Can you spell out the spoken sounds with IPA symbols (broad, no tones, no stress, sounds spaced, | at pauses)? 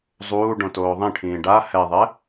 zˤ uː ɖ õ t oː ðˤ ĩ ʈʰ ĩː ɖ a h ɛ ðˤ ɛ